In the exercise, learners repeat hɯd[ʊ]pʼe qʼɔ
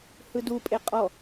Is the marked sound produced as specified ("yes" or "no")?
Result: no